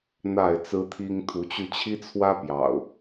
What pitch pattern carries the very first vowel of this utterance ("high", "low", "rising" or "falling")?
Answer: falling